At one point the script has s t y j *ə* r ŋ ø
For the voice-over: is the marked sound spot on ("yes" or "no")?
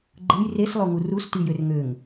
no